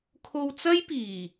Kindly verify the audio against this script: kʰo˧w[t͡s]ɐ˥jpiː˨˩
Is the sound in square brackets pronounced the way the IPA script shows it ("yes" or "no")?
yes